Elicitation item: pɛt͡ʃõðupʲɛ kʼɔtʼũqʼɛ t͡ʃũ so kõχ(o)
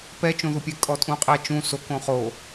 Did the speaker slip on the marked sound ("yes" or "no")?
no